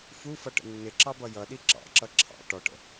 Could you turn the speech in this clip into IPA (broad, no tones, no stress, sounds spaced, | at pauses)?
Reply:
f u f ʌ ʈ ə̰ nː ɪ ǁ ɑ b ʌ j ʌ ɗ i ǁ ɑ̰ ǁ ʌ ǁʰ ɑ̰ ʈ ɔ ʈ ə̰